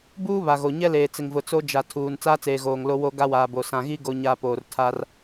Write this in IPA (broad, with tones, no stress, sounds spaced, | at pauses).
b uː˦ β a˨ ɣ o˨ ɲ ɛ˦ l eː˨ t͡s ɪ˨ ŋ v ʊ˨ t͡s o˦ d͡ʒ a˨ tʰ uː˨ n t͡s aː˦ t͡s eː˨ ɣ oː˨ ŋ l o˦ w o˦ ɡ a˦ w aː˨ b o˨ s ã˨ ɣ i˦ ɡ o˨ ɲ a˨ p oː˨ r tʰ a˦ r